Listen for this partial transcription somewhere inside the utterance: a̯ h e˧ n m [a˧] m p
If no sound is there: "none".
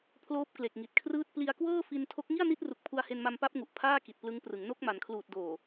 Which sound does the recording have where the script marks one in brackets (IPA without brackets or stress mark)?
a˧